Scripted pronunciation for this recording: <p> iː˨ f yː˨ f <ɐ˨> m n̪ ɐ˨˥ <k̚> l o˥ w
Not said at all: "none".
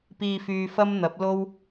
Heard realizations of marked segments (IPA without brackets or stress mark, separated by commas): p, ɐ˥, p̚